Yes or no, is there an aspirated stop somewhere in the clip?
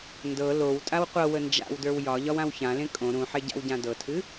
yes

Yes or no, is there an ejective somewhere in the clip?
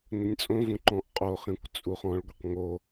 yes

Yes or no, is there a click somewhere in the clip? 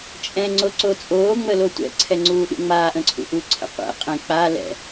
yes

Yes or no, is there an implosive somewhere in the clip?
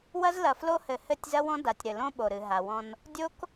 yes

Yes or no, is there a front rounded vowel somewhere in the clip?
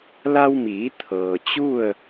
no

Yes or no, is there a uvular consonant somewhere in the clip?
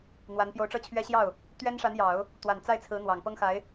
no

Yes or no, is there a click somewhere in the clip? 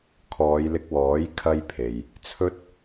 no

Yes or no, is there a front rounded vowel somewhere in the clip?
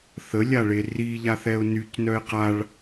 yes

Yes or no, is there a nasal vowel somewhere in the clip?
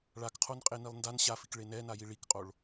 no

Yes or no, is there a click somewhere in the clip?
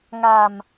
no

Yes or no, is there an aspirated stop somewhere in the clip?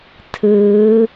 yes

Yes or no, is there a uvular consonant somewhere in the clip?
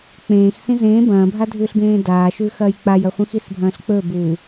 yes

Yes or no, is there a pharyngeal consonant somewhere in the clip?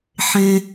yes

